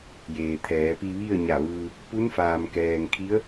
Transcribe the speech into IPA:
j eː˩ t̪ʰ ɛː˩˧ p i˧ ʋ i˥˨ ə̯ ɲ a˧˩ ʋ ɯː˧ | p u˧˥ n f aː˩ m k ɛː˩ ŋ kʰ i˧˥ ə̯

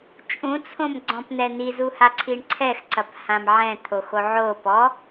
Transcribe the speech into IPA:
t͡ʃʼ ũ t͡sʰ õ m ɡ͡ǀ ɔ̃ p n̪ ɛ n̪ i z u h a ǀʰ i ɳ ǀʰ ɛ x ǀ ɐ p h ã m ʕ ɛ̃ t̪ʰ o x o ʕ o p ɔ

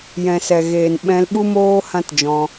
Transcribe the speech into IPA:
j ɛ̃˨ s ɛ˨ ɣ eː˨ n ɓ ɛ̃˧ l ɓ u˦ m oː˦ h ã˦ t d͡ʒ ɔ̃˧

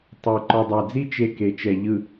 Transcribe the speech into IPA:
tˤ o˨ ǃ ɔ˨ dˤ a˨ d͡z i˦ t͡ʃ e˦ k e˨ t͡ʃ ɛ˨ ʎ ɯ˨

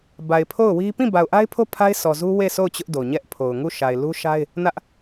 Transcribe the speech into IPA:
b a˨ ɪ̯ pʰ o˦˨ ʊ̯ w i˦ p ĩ˦˨ b a˨ ʊ̯ ʔ a˦ ɪ̯ pʰ o˦ pʰ a˦ ɪ̯ s ɔ˨ z u˦ w e˦˨ s o˦˨ ʊ̯ t͡ɕ ʊ˦ ʔ d o˨ ɲ ɛ˦ ʔ pʰ o˨ ʊ̯ ŋ u˦˨ ʃ a˨ ɪ̯ l u˦ ʃ a˦ ɪ̯ | n ä˦ ʔ

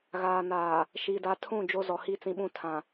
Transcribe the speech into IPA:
ɣ aː˨ n aː˨ | ʃ iː˨ d a˨˦ tʰ ũ˦˨ d͡ʒ o˦ z ɔ˨ h i˦ t͡s ĩ˦ ɓ ũ˦ tʰ ã˨

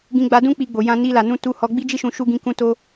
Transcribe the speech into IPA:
ɡ ĩ˧ ɡ͡b a˧ d ũ˦ k͡p i˧ ɡ͡b o˨ j ã˧ n i˧ l a˨ n ũ˧ t u˧ h ɔ˧ ɡ͡b i˦ d͡ʒ i˦ ʃ ũ˧ ʃ u˧ ɡ ĩ˧ k ũ˧ t o˧

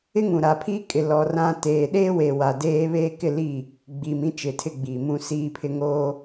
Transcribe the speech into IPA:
ɪ˦ ŋ ũ˨ ɾ a˨ pʰ iː˦ kʼ ɪ˨ l ɔ˨ r ã˦ t eː˨ ɗ e˦ w e˨ w a˨ d eː˦ β e˦ k ɪ˦˨ l i˦˨ | ɡ͡b iː˨ m ĩ˦ t͡ʃ ɪ˨ tʰ ɪ˦˨ ɡ͡b iː˨ m ũ˦ s iː˦ pʰ ɪ˦ ŋ oː˦

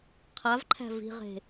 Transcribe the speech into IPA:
qʰ a v ǃʰ æ̤ v i̤ ʁ e̤

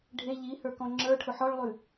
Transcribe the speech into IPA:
ɖʱ e ʎ i h ə˞ k ɔ̃ ŋ͡ǁ ə˞ ʈʰ ʊ ħ ɔ ɭ lˠ ʉ

